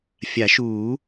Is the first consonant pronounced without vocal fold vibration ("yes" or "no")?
yes